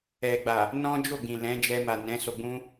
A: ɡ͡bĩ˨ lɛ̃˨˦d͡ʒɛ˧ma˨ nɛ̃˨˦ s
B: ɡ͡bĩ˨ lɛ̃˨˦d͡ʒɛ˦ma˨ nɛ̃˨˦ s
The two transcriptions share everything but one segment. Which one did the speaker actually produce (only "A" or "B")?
A